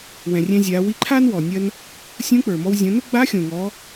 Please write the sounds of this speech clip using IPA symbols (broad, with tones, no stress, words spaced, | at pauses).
wɛ̃˩rʲɛ̃˧zʲa˩˧ wi˧ǃʰa˥n wɔ˩nʲɐ˧n | sʲũ˧˥k͡pə˞˩mɔ˧w zʲõ˩˧nʊ˥ ɡ͡ba˧˥xʲõ˩ŋɔ˩˧